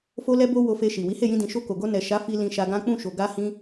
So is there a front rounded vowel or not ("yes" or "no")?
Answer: no